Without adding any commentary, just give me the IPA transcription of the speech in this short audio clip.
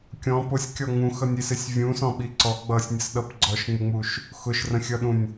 kʲ ɔ̃ p ʊ sʲ kʲ ɔ ŋ ũ x ʌ nʲ i s ɪ sʲ vʲ ũ s ɔ̃ ɓ i ǀ ɔ ɡ͡b ʌ sʲ nʲ ə s ɗ ʌ p ɡ͡ǀ ɔ ʃ ŋ͡m ɪ ŋ͡m u ʃ | x ʊ ʃ r ə̃ xʲ ʌ ɗ ũ nʲ

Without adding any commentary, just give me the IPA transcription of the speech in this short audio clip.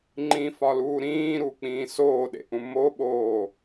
ŋ͡ǃ ĩ f ɒ l uː ɾ ĩː ɾ u k͡p ĩː s oː ɗ ḛ ʔ ũ m o ɓ oː

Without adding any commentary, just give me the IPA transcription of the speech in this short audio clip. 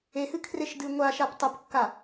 e h ɨ kʰ r e ʃ d ɨ ŋʷ a ʃ a p tˤ ɵ p kː a

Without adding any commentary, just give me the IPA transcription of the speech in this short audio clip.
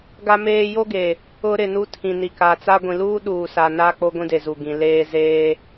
ɡ a˦ m eː˦ j o˦ ɡ e˨ | ʊ˦ ɾ ɪ˦˨ n u˦ tʰ ĩ˨ n i˨ k a˨ t͡s a˦ ɡʷ ĩ˨ l uː˦ ɗ uː˨ s a˨ n a˦ k͡p o˦ ɡʷ ĩ˦ d e˨ z u˨ ɡ ĩ˨ l eː˦ z eː˦

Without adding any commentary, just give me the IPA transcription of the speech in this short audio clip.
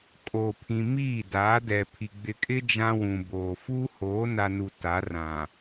kʼ o˨ pʰ ĩ˨ m iː˦˨ d aː˨˦ d ɛ˨ pʰ i˨ ɡ͡b ɪ˨ kʼ ɪ˦ d͡ʒ ã˦ w ũ˨ b oː˨ f uː˦ h oː˨˦ n a˨ n u˨ t a˨˦ r ã˨

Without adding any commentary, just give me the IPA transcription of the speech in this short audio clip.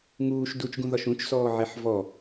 ŋ uː ʃ d u t͡ʃ ɡ ũ ð ɒ ʃ ũ t͡ʃ s ɔː ʕ e ħ v ɔ

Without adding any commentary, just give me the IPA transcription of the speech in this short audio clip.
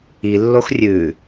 i lː o x rʲ ʉ

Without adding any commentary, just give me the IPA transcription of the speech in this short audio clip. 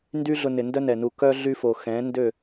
n d y˦ ɮ ʊ˧ n ɪ˨ n d œ˦ n ɛ˨ n u˧ k œ˦ ɮ y˦ f o˨ x ɛ̃˨˦ n d ø˦˨

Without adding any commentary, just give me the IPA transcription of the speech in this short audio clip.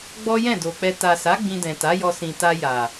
ɡ͡b ɔ˦ j ɛ̃˦˨ d o˨ k͡p ɛ˧ t a˨ s a˨˦ ɡ͡b ĩ˧ d ɛ̃˨ t a˨˦ j ɔ˧ s ĩ˨ t a˧ j a˨

